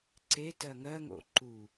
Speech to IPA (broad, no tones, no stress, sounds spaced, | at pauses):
ǀ e t ɜ ŋ ɜ ŋ o̰ ǃ u